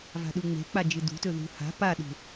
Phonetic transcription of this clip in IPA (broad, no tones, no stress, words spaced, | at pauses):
va̤ɗuŋ͡me̤k͡pa d͡ʒɨdṳtɵ ðṳ ha̤ paɗṳ